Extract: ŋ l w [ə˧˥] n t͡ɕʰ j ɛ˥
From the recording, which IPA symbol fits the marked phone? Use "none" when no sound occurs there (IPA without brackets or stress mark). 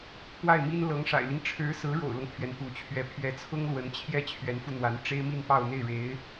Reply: ə˧˥